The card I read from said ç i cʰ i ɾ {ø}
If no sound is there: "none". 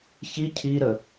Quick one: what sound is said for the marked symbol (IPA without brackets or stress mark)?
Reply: ə